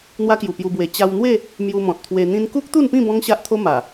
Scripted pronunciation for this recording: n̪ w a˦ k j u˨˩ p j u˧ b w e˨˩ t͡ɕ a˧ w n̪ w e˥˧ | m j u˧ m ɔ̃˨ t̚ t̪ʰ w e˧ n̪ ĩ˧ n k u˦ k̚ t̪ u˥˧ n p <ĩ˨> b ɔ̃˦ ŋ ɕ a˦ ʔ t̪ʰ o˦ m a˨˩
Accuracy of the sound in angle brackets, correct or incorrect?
incorrect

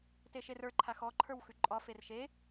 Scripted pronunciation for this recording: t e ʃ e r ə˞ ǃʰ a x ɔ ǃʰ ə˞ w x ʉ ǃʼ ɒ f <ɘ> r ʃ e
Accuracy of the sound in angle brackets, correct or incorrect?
incorrect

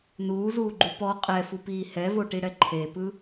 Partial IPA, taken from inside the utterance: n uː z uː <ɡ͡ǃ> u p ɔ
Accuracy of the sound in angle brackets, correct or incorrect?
correct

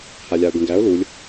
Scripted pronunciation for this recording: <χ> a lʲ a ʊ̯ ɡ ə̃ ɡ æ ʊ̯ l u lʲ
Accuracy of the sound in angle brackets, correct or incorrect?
incorrect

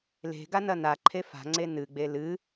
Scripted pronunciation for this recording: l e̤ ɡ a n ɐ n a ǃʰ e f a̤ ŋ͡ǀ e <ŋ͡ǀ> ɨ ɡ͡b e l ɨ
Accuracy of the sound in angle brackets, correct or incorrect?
incorrect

